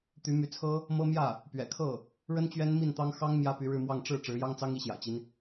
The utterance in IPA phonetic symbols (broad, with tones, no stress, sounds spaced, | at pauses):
t̪ y˧˥ m y˧˥ t͡sʰ ɤ˥ | m ɤ˥ m j ä˥˩ | p ɥ ɛ̰˨˩ kʰ ɤ˥˩ | ɻ ə˥ n t͡ɕ ɥ ɛ˥ n m i˥˩ n t̪ ɑ˥ ŋ x ɑ˥ ŋ m j ä˥ p y˧˥ ɻ ɻ̩˥˧ m w ɑ˥˧ ŋ ʈ͡ʂ ɻ̩˥˩ ʈ͡ʂ ɻ̩˧˥ j ɑ˥ ŋ t͡s ɑ˥ ŋ i˧˥ ɕ j ä̰˨˩ t͡ɕ i˦ n